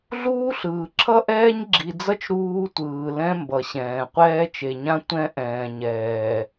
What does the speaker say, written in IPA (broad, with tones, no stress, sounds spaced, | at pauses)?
ɮ uː˦ ɬ ɯː˨ ǁʰ ʌ˦ ʔ ɛː˦ ɲ ɡ͡ǁ i˨ d͡z ʌ˦ t͡ʃ ɾ uː˦ tʷ ɯː˨ l ɛ̃˦ m b ʌ˨ ɕ ɛ̃ː˨ qʷ ɛː˦ t͡ʃ e˨ ɲ ã˦ tʷ ɛ̃˦ ʔ ɛ̃ː˨ ɲ ɛː˨